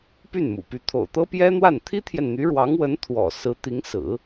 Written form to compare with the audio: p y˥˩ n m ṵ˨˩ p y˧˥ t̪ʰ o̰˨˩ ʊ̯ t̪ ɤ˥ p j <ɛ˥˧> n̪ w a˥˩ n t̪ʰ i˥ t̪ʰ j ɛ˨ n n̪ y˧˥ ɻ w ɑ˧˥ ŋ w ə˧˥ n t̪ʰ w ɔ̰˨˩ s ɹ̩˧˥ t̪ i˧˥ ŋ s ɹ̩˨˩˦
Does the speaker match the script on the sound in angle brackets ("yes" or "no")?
no